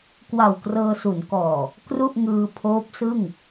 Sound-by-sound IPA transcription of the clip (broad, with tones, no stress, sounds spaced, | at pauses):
k w a˨˩ w k r ɤː˧ s u˩˦ n k ɔː˨˩ | k r u˥˩ ʔ ŋ ɯː˧ pʰ oː˦˥ p̚ s ɯ˥˩ ŋ